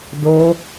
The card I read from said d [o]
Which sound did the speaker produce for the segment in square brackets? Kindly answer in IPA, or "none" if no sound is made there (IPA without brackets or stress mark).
o